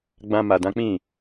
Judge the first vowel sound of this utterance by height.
low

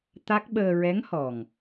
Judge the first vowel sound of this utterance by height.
low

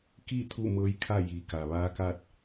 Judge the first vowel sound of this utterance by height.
high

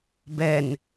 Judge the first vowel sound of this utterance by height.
mid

